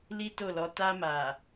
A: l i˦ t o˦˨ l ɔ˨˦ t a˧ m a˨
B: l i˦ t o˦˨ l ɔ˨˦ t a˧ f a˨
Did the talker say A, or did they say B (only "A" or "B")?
A